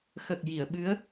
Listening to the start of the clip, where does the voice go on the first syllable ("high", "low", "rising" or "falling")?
low